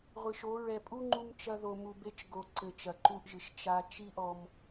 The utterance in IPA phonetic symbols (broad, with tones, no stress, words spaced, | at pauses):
ʁʷɨ˨ʃo˨˦ɹɛ˧ pʼu˦ŋ͡ǃu˧mt͡ʃɐ˧ ðo˨mu˨be˧t͡ʃ ɡo˨ǀɘ˨ t͡ʃɐ˨ǃu˧ʔʒɨ˨ʃ t͡ʃa˧ t͡ʃi˦ʔɔ˧m